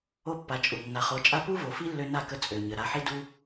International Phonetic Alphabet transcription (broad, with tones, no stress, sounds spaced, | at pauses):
o˦ pː a˨˦ t͡ʃʼ u˨ nː a˨ χ o˨˦ t͡ʃʼ a˦ p u˦ v o˨ f i˦ lː ø˧ n a˦˨ k ə˧ t͡sʼ ø˨ ɲ ə˨ ɾ a˧ ħ i˦ d u˦